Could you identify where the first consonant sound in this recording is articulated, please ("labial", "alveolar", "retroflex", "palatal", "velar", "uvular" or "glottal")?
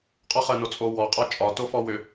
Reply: uvular